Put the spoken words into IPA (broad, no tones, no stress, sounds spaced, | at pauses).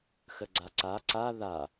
x ə ɡ͡ǀ a ǀ a ǀ a ð a